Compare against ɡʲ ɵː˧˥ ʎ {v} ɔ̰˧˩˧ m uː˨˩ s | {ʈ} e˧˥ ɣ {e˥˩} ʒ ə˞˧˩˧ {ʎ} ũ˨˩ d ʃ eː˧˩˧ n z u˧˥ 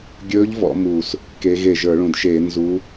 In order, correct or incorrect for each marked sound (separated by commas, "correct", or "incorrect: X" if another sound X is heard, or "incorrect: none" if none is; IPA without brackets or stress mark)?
correct, incorrect: k, correct, incorrect: ɭ